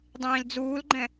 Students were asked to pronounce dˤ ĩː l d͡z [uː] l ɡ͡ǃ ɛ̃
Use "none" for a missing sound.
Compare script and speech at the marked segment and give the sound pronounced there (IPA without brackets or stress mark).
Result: uː